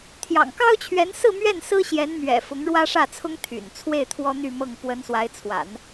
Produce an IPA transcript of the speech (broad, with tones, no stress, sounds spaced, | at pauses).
t̪ʰ j ɑ̰˨˩ ŋ k ɑ˥ ʊ̯ t͡ɕʰ ɥ ɛ˧˥ n s ɹ̩˥˧ m ɥ ɛ˥˩ n s ɹ̩˥ ɕ j ɛ˧˥ n m ɥ ɛ̰˨˩ f ʊ˧˥ ŋ ɻ w ä˥ ʂ ä˥˩ t͡sʰ ʊ˥ ŋ t̪ʰ y̰˨˩ n t͡sʰ w e˥˩ ɪ̯ t̪ʰ w ɔ˥ n̪ y˥˧ m ɤ˥˩ ŋ p w ə˧˥ n s w a˧˥ ɪ̯ t͡sʰ w a̰˨˩˦ n